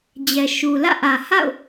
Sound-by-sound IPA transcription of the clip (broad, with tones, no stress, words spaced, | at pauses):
d͡ʑɛ˨ʃu˨ lä̰˦˨ʔä˨ ha̰˦˨ʊ̯